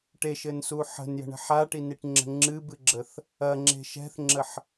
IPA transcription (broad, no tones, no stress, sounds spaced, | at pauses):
ʈ e ʃ ɘ n s u ħ ə̤ n j ə̤ ɳ ə̤ ħ a ʈ i n i ʈ ŋ͡ǁ ə̤ ŋ͡ǁ ɨ b ɨ ɡ͡ǁ ə θ | ɐ ŋ͡ǁ e̤ ʃ ɛ̤ θ ŋ͡ǁ ə ħ